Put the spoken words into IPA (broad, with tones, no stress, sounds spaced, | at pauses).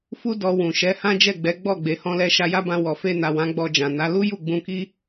f u˦ d ɔ˧ w ũ˨ ʃ ɛ˨˦ h ã˦ d͡ʒ ɛ˦˨ ɡ͡b ɛ˨˦ ɡ͡b ɔ˦˨ ɡ͡b e˨ h ɔ̃˧ l ɛ˧ ʃ a˧ j a˦ b ã˧ w ɔ˨ f e˧ n a˨ w ã˨˦ ɡ͡b ɔ˧ d͡ʒ ã˨ n a˨˦ l u˦ j u˦˨ ɡ͡b ũ˧ k i˦